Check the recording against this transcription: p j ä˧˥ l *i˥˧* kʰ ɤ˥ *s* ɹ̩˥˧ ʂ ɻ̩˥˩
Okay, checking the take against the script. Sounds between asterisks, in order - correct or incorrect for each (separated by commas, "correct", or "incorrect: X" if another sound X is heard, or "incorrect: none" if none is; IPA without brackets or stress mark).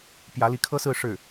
incorrect: i˧˥, correct